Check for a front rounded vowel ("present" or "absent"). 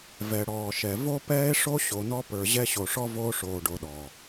absent